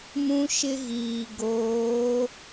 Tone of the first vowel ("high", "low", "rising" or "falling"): high